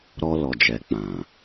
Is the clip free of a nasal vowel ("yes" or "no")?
no